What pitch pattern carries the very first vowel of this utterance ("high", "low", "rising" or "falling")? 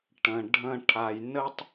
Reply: low